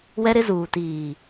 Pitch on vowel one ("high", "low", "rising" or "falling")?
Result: high